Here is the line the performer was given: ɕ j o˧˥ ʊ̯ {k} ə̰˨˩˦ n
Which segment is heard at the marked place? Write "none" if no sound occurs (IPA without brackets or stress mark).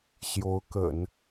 k